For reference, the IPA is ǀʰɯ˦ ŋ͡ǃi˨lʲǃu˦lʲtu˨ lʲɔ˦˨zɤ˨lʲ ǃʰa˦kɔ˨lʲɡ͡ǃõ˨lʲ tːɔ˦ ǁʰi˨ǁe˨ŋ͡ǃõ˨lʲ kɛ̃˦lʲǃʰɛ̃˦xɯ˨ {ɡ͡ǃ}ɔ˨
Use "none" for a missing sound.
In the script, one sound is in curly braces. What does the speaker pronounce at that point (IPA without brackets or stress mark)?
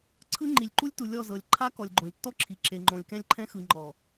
ŋ͡ǃ